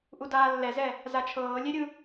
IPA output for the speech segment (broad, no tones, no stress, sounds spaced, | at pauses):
ʔ u d aː lː ɛ z ɛ | z a t͡ʃʰ ɤː lʲ e ɾʲ ɯ